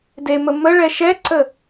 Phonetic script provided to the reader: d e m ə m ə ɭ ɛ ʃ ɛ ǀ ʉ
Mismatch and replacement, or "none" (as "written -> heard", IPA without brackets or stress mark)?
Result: ʉ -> ə